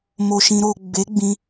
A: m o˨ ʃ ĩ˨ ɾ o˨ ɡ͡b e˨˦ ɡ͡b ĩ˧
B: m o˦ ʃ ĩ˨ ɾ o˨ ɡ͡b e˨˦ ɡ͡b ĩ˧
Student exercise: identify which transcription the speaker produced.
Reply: A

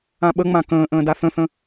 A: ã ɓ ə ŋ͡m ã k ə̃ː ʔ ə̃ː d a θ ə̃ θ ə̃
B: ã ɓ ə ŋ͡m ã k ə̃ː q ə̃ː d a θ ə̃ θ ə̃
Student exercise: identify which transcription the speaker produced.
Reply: A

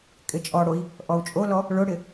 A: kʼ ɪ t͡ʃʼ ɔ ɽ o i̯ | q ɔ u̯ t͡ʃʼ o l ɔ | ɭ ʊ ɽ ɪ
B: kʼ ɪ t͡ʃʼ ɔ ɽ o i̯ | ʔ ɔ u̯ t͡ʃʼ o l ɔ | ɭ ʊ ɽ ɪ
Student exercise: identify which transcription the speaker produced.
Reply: B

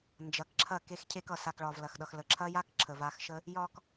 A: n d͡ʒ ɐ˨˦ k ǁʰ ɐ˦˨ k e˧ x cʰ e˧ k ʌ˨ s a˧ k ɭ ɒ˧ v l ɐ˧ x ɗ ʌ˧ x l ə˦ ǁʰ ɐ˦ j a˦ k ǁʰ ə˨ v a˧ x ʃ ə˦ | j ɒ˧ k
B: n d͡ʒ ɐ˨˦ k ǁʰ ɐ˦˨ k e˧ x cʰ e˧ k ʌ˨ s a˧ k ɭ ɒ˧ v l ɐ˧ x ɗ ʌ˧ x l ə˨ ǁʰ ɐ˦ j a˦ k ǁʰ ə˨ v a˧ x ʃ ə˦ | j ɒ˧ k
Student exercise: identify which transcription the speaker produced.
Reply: B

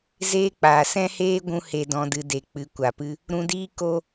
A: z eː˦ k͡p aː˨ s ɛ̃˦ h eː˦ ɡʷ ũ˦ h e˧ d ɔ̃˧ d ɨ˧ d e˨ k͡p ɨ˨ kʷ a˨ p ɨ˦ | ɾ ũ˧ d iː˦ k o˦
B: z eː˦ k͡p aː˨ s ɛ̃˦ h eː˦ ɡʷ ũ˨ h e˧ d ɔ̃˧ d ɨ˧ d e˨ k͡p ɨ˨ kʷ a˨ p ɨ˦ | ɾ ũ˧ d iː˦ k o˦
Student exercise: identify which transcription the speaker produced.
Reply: A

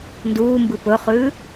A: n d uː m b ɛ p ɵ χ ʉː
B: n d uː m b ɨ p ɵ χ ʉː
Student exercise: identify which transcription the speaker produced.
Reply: B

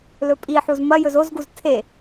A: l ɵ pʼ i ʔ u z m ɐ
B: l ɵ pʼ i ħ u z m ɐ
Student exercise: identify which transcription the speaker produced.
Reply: B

